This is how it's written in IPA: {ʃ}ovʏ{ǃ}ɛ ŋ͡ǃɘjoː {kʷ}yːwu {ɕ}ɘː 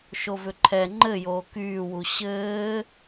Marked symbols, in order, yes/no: yes, no, no, yes

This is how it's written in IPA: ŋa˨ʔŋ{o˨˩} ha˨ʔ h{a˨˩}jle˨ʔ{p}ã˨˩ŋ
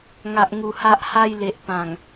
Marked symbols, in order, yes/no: no, no, yes

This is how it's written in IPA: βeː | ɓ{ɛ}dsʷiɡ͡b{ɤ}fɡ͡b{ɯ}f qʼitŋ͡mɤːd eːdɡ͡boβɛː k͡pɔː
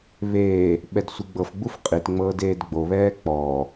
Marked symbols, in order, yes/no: yes, yes, no

